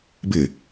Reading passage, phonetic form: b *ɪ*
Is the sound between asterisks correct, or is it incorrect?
correct